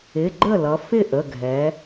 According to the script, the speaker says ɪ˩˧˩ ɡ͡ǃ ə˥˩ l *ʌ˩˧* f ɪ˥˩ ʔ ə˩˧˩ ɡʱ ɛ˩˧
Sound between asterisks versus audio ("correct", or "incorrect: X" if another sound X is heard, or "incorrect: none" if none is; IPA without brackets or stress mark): correct